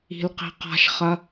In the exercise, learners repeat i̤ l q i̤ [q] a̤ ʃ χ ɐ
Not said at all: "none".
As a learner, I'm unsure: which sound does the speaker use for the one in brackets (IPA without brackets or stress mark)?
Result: q